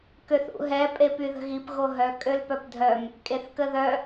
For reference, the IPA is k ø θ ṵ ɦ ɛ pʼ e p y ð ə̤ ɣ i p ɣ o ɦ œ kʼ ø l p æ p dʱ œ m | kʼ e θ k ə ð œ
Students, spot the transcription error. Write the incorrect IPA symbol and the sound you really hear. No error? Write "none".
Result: æ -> œ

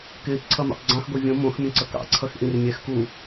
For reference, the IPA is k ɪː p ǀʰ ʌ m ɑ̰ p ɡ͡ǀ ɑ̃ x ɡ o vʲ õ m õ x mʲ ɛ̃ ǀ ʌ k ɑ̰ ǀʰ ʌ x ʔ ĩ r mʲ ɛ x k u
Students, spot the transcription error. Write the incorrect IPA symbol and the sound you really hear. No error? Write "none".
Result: none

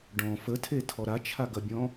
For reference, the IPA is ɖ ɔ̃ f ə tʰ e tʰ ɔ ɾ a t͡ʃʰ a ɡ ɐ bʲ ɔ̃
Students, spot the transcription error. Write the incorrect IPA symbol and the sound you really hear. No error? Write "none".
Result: none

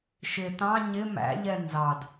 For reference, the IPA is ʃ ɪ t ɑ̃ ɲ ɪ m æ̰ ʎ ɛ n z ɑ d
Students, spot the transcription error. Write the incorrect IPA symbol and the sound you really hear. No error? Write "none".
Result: none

